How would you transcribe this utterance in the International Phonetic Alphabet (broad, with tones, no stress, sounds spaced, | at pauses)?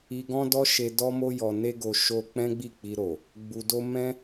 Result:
i˧ ɡ ɔ̃˦ d ɔ˦ ʃ e˧ d ɔ˦ m o˦ j ɔ˧ n e˦ ɡ o˧ ʃ o˦ k͡p ɛ̃˦ ɡ͡b i˦˨ k͡p i˧ ɾ o˨ | ɡ͡b u˧ d o˦ m ɛ̃˦